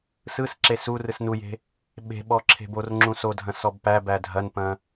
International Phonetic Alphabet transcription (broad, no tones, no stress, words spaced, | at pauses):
sɯsǁe su rɯsnuje̤ | ɓe̤ɓɔ ǁʰe̤borŋ͡ǁũ sodʱɐ̃s ɔbpæbæ dʱɐnpɐ̃